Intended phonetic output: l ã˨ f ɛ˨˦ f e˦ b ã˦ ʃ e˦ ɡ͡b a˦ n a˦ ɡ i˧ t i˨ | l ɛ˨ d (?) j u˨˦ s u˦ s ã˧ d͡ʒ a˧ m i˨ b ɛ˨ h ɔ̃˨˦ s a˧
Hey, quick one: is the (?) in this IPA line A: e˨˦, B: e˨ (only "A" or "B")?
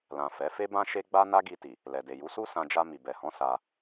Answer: B